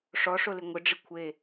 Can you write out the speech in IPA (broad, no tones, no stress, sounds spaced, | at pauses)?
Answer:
ʂ ɔ ʂ o l ɪ ŋʷ ɪ ɖ͡ʐ ɪ kʷʰ e